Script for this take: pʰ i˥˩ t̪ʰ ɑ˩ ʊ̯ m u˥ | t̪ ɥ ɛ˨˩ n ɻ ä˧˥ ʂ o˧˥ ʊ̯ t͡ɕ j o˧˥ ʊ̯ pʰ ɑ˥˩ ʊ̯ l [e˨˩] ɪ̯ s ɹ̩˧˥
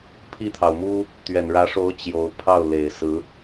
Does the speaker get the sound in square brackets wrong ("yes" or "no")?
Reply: no